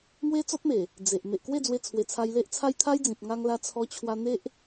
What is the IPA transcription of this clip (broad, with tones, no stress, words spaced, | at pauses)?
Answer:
ŋwe˦t͡sɔ˦t̚me˨˩ | d͡ze˨ʔ me˨ʔkwe˥˧d͡zwe˧t͡sʰwe˨˩ t͡sʰa˧jle˦ʔt͡sʰa˦j t̪ʰa˦jd͡zĩ˨p̚ ŋa˧ŋla˧ t͡sʰɔ˧t͡ɕʰwa˧n̪e˦ʔ